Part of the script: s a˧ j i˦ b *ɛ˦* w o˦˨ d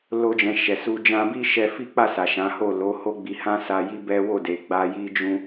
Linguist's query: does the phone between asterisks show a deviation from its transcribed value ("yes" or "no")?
no